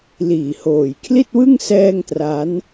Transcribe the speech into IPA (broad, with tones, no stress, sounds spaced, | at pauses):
l iː˨˩ h oː˨˩ j kʰ l i˥˩ t̚ w ɯ˥˩ ŋ s ɛː˥˩ ŋ t r a˦˥ n